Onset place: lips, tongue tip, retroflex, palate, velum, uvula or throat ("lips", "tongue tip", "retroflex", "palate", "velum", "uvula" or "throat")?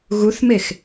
velum